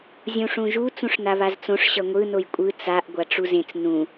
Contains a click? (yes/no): no